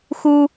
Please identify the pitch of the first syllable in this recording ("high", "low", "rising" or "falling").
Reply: high